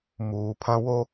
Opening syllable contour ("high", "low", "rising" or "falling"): low